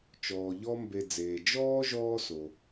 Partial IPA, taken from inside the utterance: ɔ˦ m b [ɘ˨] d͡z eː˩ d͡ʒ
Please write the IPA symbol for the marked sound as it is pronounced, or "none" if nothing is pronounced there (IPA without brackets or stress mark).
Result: e˨